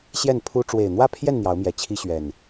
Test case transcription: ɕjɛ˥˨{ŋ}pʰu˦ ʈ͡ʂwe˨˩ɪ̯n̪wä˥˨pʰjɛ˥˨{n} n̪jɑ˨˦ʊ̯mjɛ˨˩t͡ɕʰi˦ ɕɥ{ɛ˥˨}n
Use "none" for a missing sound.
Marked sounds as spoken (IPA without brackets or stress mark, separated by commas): n, n, ɛ˨˩